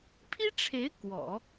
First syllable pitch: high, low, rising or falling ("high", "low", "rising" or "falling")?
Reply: high